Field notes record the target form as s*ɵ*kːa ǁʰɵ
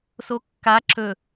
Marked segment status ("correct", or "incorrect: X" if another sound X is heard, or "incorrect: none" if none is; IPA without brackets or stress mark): incorrect: o